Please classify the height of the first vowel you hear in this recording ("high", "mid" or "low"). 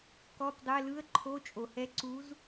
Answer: mid